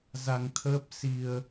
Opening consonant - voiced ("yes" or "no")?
yes